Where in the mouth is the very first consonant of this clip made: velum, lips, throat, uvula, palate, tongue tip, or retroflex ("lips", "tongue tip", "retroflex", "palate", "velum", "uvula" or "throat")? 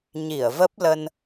palate